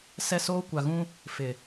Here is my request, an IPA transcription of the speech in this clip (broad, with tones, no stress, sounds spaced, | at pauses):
s ɛ˦ s oː˦ kʷ a˨ ɣ ũ˦ | f ɪ˨